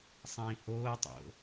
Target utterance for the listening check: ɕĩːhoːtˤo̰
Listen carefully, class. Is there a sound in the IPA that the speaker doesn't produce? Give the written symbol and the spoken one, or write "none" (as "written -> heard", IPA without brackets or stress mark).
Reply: ɕ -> sˤ